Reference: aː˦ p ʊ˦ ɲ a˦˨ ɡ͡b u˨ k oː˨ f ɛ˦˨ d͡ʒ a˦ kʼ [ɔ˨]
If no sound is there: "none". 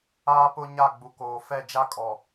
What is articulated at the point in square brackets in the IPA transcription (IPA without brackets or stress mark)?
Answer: ɔ˨